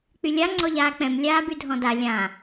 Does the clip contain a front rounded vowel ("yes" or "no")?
yes